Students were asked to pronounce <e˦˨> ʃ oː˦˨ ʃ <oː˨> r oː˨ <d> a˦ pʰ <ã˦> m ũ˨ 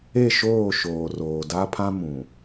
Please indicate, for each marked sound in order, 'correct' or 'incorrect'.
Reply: correct, correct, correct, correct

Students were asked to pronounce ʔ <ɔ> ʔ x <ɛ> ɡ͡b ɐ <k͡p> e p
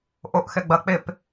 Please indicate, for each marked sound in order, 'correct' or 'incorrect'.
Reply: incorrect: o, correct, correct

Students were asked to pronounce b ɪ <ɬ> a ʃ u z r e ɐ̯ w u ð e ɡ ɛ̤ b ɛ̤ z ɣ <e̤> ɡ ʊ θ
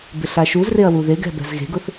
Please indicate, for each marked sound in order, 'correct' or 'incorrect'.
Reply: correct, correct

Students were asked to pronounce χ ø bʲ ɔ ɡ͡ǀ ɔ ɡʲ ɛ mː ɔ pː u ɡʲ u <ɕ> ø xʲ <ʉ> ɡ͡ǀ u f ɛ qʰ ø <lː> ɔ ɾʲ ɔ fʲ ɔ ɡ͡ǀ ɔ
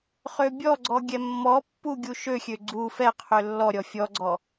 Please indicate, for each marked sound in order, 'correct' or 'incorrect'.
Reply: incorrect: ʃ, incorrect: ø, correct

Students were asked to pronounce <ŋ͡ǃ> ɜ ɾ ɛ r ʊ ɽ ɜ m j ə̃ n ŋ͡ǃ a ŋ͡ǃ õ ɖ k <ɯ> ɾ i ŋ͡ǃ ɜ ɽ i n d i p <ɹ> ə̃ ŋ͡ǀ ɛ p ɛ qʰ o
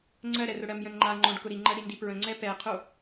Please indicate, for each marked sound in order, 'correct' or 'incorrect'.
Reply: incorrect: ŋ͡ǀ, incorrect: ʊ, correct

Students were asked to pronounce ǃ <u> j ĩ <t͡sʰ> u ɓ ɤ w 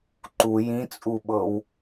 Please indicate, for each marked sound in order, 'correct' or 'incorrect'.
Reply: correct, incorrect: t͡sʼ

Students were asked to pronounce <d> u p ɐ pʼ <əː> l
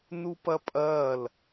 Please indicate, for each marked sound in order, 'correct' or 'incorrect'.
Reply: incorrect: n, incorrect: ɐː

